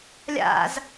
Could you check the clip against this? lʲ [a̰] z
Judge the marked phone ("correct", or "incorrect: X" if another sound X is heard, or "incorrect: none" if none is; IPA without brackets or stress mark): correct